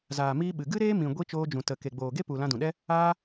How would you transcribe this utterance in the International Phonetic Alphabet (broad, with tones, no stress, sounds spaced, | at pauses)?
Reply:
z aː˨ m iː˧ ɓ ɨ˨ ɡ ɨ˦ ɾ eː˦ m ĩ˨ ɡʷ i˧ t͡ʃ oː˧ d͡ʒ ũ˨ t ə˨ k e˨ ɡ͡b oː˨ ɡ e˦ p u˨ l ã˧ d ũ˨ ɗ ɛ˦ | aː˦